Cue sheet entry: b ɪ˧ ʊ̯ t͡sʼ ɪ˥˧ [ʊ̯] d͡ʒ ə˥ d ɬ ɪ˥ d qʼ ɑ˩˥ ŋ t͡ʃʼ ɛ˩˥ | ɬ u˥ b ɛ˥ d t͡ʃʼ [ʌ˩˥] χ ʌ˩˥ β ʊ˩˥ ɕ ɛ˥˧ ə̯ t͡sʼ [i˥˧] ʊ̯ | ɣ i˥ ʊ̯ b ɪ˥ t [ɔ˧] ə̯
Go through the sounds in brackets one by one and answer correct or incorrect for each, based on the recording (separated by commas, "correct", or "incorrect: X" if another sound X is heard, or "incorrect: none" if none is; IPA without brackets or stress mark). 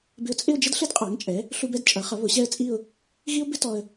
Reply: correct, correct, correct, correct